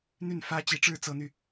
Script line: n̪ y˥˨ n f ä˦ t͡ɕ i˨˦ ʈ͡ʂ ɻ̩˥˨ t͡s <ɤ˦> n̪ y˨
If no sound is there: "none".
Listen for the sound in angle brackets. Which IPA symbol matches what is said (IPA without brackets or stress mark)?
ɤ˦